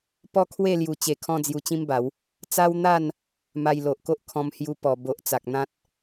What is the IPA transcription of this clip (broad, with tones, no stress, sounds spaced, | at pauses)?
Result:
p ɔ˦ kʰ w e˥˧ l j u˨˩ t͡ɕ e˨˩ kʰ ɔ̃˧ d͡z j u˧ t͡ɕ ĩ˦ m b a˨˦ w | t͡s a˦ w n̪ a˥˧ n | m a˧ j l o˨ ʔ k o˦ ʔ kʰ ɔ̃˧ m h j u˧ p ɔ˨˩ b o˨ ʔ t͡s a˨ k̚ n̪ ã˦ t̚